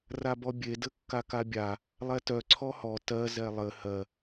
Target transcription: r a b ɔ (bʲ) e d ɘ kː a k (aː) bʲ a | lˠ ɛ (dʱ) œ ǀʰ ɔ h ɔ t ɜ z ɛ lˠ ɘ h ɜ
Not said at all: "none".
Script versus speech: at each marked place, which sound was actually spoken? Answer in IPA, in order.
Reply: bʲ, a, t

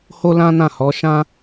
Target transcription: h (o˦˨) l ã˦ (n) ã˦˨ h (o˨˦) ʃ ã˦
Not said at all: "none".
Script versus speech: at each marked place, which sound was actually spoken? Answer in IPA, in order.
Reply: o˦, n, ɔ˨˦

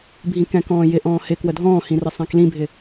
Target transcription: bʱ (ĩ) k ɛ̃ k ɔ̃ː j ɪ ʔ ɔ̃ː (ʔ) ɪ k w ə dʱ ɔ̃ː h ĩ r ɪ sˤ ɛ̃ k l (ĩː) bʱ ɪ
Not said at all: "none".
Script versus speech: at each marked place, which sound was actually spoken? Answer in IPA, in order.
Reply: ĩ, h, ĩ

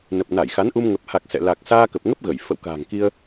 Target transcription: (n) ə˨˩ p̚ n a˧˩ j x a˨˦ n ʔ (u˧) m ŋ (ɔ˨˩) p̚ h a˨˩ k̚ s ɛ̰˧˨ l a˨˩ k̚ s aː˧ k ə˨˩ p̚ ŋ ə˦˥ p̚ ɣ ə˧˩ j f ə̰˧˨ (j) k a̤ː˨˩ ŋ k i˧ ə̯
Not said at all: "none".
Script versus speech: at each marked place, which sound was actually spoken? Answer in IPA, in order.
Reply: n, u˧, ə˨˩, w

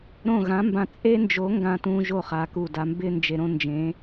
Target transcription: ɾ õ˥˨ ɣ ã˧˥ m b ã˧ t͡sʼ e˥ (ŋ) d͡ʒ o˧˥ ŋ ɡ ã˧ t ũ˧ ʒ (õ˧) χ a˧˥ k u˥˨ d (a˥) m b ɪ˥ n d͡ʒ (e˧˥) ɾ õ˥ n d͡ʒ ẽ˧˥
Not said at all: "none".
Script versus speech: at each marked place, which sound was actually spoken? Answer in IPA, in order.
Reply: n, o˧, a˥, e˧

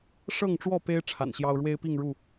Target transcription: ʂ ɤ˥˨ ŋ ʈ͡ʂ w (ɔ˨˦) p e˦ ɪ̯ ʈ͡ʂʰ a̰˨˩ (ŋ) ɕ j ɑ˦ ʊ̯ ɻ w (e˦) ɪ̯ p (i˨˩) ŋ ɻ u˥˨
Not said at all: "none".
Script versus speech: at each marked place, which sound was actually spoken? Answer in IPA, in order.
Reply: ɔ˥˨, n, e˦, i˥˨

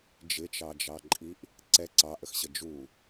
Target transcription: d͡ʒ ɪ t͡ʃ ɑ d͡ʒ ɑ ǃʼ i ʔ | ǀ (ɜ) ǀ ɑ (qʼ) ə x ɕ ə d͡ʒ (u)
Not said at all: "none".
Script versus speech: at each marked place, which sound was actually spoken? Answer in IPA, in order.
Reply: ɛ, ʔ, u

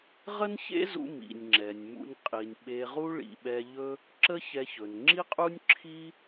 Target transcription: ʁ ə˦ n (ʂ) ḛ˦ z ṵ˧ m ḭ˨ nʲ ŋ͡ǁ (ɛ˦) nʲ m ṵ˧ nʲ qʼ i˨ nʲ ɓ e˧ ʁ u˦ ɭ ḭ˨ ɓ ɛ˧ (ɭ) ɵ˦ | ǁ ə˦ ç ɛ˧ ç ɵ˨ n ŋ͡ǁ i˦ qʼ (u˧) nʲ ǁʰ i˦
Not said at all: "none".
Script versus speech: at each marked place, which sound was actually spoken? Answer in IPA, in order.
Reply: ç, ɛ˨, ʎ, u˦

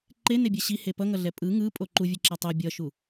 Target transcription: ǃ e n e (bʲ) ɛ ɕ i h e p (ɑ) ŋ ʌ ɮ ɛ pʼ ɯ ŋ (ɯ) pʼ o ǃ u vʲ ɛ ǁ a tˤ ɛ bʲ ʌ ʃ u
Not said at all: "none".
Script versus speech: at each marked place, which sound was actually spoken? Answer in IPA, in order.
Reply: bʲ, ʌ, ɯ

